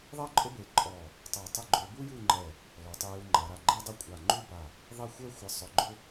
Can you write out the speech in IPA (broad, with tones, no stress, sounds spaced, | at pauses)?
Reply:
ðˤ ɛ˥ ǃʼ ʊ˥ b e˧˩ ǃʼ ɔ˧˩ | tˤ a˧˩ tˤ ɪ˥˧ ɡ͡ǃ o˧ b u˥ j u˥˧ ŋ͡ǃ ɛ˧˩ | l ɔ˩˧ tˤ e˧ j u˧ ŋ͡ǃ a˩˧ ɾ a˧˩ ɡ͡ǃ e˥ dˤ ɪ˥˧ kʷʼ a˧˩ ŋ͡ǃ u˥˧ b a˧˩ | ðˤ e˥˧ xʷ ɛ˥ xʷ ɪ˧ sˤ ʊ˧ ɡ͡ǃ ʊ˥